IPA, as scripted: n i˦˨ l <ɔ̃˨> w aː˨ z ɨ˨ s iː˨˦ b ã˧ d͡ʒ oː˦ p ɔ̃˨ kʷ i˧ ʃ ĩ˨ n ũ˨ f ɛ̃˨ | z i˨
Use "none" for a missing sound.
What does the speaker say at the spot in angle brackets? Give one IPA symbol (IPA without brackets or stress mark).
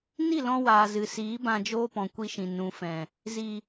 ɔ̃˧